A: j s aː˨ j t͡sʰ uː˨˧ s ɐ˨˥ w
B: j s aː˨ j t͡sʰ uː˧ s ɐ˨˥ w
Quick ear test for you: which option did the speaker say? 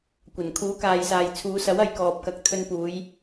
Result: A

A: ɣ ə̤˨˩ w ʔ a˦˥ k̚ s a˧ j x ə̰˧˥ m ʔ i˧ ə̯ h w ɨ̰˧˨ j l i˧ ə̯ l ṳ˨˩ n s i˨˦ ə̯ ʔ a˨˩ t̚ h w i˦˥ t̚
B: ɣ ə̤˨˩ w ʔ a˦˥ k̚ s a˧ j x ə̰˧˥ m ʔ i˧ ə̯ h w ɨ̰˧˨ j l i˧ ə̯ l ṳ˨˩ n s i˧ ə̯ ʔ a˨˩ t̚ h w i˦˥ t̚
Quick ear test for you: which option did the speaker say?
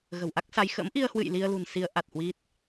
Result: A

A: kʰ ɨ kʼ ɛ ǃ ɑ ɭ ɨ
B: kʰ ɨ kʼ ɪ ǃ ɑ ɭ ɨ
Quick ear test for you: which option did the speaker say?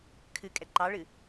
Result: A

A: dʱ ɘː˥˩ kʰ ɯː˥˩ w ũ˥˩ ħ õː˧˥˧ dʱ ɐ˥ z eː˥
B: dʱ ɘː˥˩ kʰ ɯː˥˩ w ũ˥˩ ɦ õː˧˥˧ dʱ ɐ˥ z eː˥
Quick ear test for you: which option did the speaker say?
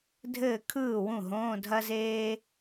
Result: B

